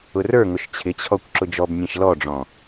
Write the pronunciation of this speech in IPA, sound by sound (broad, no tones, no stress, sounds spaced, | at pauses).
ʊ r ə˞ ŋ ʊ ʃ t͡ɕʰ ɪ t͡ɕʰ ɔ kʷ ǁ ʊ d͡ʒ ɔ b nʲ ɛ̃ ʃ l ɔ ɖ͡ʐ ɔ̃